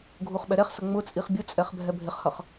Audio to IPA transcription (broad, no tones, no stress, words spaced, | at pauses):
ɡʱuχɓɛɾɛχsʌ ŋ͡mʊ t͡sʼiχbʲʊt͡sʼɛχ bʱɛbʱɪχhʌχ